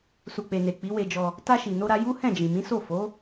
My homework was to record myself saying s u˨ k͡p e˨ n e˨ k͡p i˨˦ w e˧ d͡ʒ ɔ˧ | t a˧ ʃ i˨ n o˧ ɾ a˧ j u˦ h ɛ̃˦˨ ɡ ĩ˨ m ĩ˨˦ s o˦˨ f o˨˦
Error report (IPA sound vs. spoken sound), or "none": ɡ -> d͡ʒ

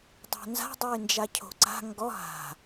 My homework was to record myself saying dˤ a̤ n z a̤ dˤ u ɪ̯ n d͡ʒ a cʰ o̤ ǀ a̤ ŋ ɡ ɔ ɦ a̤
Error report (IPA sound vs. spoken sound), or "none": none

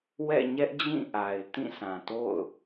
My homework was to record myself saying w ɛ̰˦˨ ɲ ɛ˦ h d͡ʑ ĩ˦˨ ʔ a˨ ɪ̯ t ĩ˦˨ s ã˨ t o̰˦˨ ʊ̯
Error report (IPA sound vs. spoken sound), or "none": h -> ʔ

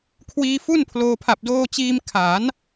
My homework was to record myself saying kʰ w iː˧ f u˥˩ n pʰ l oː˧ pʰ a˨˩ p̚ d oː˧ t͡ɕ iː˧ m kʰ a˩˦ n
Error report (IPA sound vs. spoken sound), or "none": none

